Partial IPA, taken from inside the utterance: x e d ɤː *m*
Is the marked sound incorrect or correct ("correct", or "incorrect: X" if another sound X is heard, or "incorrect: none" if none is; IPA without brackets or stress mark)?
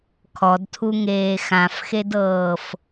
incorrect: f